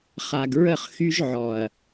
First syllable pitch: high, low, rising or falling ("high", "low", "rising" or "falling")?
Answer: low